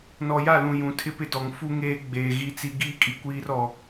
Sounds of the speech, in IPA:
nɔ˨ja˦˨lũ˨ jũ˨tʰɪ˦pɪ˦dɔ˨ŋ fu˦ŋeː˦ ɡ͡beː˨ɣi˦t͡si˦ ɡiː˦kʼi˨kʷiː˦r ɔ˦

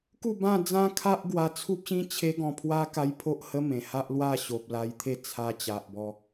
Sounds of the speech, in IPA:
ku˥˧bã˥˧ d͡zã˦kʰa˦ʔɡwa˧ t͡sʰu˦p̚ɕĩ˦ t͡ɕʰe˦ɡɔ̃˧pʰwa˦ ka˦jpʰo˦ʔhə˦ mẽ˨˩ha˦ʔlwa˥˧ ɕo˨p̚la˧jt̪ʰe˥˧ t͡sʰa˧ t͡ɕa˨ʔbɔ˧

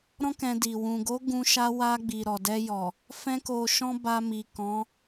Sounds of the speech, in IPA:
ɾɔ̃˦kɛ̃˧di˨ wũ˨ɡo˨˦ ɡũ˧ ʃa˧wa˧ɡ͡bi˨ ɾɔ˨dɛ˧jɔ˨ | fɛ̃˦ko˧ʃɔ̃˦ ba˧mi˨ kɔ̃˨˦

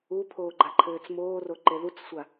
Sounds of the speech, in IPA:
upʰoːɡ͡ǃaǃʰɘːt͡s moːro ǃeðut͡ssʷa

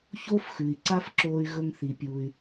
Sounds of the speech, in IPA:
çoː˥fxʉ˩i̯ ǀa˥fǁoː˧y̯ ɣɵ˧ŋθi˩pʲu˩y̯

